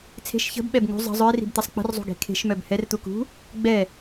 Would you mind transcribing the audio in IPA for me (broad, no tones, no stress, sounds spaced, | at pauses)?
t͡sʰ e̤ ʃ ç ə̤ b ɓ ɛ b ŋ ṳ zˤ ə̤ zˤ œ ɪ̯ r i̤ b t̪ ɛ sˤ k͡p ə̤ r zˤ ṳ ɡ e̤ kʰ e̤ ʃ m œ b h ɛ r t̪ u k ṳ | ɡ͡b ɛ